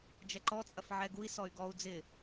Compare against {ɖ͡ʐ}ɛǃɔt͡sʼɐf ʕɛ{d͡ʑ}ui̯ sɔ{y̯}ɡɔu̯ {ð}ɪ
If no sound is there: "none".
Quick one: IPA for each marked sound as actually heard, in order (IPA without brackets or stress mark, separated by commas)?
d͡ʒ, ɡ, y̯, d͡z